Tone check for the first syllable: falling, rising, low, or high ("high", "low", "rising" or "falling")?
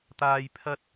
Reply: low